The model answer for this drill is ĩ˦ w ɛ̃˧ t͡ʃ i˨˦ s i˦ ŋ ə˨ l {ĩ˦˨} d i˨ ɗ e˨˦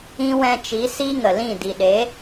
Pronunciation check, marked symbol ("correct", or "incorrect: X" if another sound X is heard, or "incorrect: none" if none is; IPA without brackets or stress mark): correct